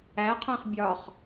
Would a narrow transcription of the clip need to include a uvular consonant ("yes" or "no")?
yes